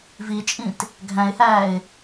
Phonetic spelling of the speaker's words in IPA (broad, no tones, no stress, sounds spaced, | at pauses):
v i t͡ʃʼ ĩ t | ɡʱ æ̃ ɪ̯ h æː ɪ̯